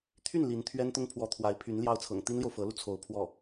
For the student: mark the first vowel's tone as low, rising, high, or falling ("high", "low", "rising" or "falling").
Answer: falling